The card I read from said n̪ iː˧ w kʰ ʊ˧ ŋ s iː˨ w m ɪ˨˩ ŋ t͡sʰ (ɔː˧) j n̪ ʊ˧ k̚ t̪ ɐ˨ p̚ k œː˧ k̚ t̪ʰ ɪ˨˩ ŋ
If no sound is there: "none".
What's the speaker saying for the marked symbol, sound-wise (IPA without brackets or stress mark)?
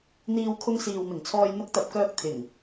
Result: ɔː˧